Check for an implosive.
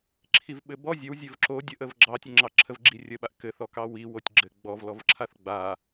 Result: present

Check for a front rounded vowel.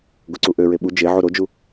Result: present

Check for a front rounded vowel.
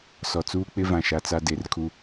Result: absent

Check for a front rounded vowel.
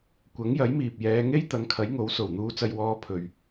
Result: absent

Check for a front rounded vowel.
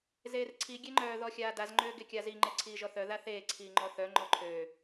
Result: present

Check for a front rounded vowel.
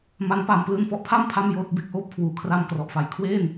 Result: absent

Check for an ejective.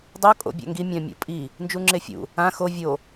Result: present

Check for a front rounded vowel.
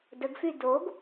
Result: present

